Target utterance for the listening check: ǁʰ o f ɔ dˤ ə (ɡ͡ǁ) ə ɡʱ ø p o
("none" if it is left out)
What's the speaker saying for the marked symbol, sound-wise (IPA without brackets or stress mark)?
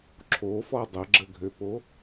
ɡ͡ǁ